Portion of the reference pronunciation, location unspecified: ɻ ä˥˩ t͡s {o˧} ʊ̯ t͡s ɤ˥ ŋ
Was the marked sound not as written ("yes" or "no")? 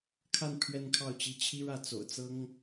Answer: yes